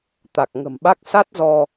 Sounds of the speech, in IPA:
t̪ a˨˩ k̚ ŋ ə̤˨˩ m ɓ a˦˥ k̚ s a˦˥ t̚ z ɔ˧

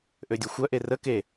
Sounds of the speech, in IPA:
ʔ ø dʲ u xʷ œ ʔ e r ə k e

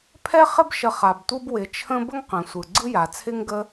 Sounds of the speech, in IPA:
pʰ ɛ˥ χ ɪ˥ b ʃ ə˨ χ a˩ b tʷ ɯ˥ b w ɪ˩ t͡ʃʰ ə̃˦ b ə˥ ŋ q ə̃˩ sʷ ɯ˩ ɡ͡ǀ ɯ˥ j a˩ t͡sʰ ɪ˥ ŋ ɡ ə˦

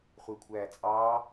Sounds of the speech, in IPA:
χʷ e kʷʰ æː t͡sʼ ɑː

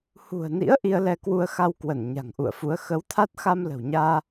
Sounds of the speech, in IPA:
h ṳ˨˩ ə̯ n ḭ˧˥ ə̯ ʔ i˧ ə̯ l ɛ˧ k w u˧ ə̯ x a˧ w k w ə˧˩ n ɲ a̤˨˩ ŋ ʔ ṵ˧˨ ə̯ f u˨˦ ə̯ x ə˨˦ w t̪ʰ a˦˥ t̚ x a˧ m l ə̤˨˩ w ɲ aː˧

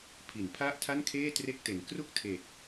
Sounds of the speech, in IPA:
pʰ i˩˦ n pʰ a˥˩ ʔ tʰ a˥˩ n kʰ eː˥˩ t r e˥˩ k̚ t e˨˩ n k r u˥˩ k̚ tʰ eː˨˩ k̚

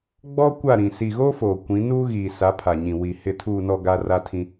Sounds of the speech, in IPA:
ɡ͡b ɔ˦ kʷ a˦˨ ɾ ĩ˨ s i˨ ɣ oː˦ f oː˨ kʷ ĩ˨˦ n uː˦ ɣ iː˨ s a˨˦ pʰ a˨ ɲ ĩ˨ w i˨ h ɪ˨ tʰ uː˨ n ɔ˨ ɡ a˦ r a˦ tʰ ĩ˦

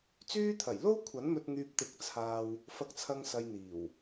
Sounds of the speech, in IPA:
t͡s yː˧ t̪ʰ ɐ˨˩ j l o˥ w kʷʰ ɐ˨˥ n m ɵ˧ t̚ ŋ yː˧ p̚ t̪ ɪ˨˥ k̚ t͡sʰ aː˧ w | f ɐ˧ k̚ t͡sʰ ɐ˧ ŋ s ɐ˧ j n̪ iː˨˩ w

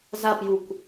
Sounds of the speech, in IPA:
z a p j u kʷ

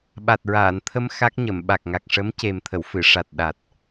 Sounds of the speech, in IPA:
ɓ a˨˩ t̚ ɹ aː˨˩˨ n t̪ʰ ə˧ m x a˦˥ k̚ ɲ ə˨˩˨ m ɓ a˨˩ k̚ ŋ a˨˩ k̚ ʂ ə˧˥ m c e˨˩ m t̪ʰ ə˨˩˨ w f ɨ˨˩˨ ʂ a˨˩ t̚ ɗ a˨˩ t̚

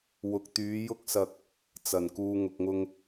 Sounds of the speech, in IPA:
w ʊ˨ k̚ t̪ yː˨˧ j ʊ˥ k̚ s ɐ˧ k̚ | t͡s ɐ˨˩ n k uː˨ ŋ ʊ˨ k̚ ŋ ʊ˧ ŋ

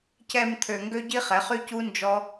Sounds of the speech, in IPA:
c ɛ˧ m t̪ʰ ø˧ ŋ ɡ ø˦ ɟ i˦ χ ɛ˨˦ χ y˦ c u˦ n d͡ʒ ɔ˦

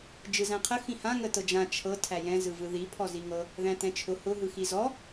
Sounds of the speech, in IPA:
d͡ʒ ɯ z æ̃ qʰ ə x ĩ h ã ŋ ə t ɤ d͡ʒ ã t͡ʃʰ ɤ tʰ æ j ɛ̃ z ɯ v ɯ ð i pʰ ɔ z i ŋ ɤ | ð æ̃ t ɛ̃ t͡ʃʰ ʊ h ʊ ɦ ɯ x i z ɔ

